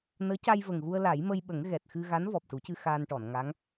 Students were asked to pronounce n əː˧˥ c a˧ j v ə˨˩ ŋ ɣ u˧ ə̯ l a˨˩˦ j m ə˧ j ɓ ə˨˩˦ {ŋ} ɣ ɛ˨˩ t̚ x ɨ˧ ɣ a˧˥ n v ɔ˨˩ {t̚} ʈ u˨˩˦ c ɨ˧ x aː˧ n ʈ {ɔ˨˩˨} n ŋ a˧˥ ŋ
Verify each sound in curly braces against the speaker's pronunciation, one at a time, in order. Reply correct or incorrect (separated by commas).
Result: correct, incorrect, correct